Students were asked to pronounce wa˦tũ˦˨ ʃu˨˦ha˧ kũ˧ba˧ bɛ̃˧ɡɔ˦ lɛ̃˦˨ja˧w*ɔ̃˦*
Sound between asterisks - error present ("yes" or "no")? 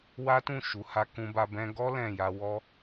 yes